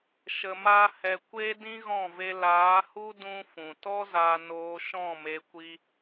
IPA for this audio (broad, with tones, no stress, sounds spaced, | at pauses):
ʃ ə˨ m a˦ h ɛ˧ kʷ e˦ d ĩ˦ ɣ ɔ̃˦˨ v e˧ l aː˨˦ h u˦ d ũ˦ f ũ˨ t ɔ˦ z a˧ n oː˧ ʃ ɔ̃˦˨ m e˧ kʷ i˧